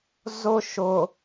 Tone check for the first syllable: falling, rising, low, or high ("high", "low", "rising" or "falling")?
high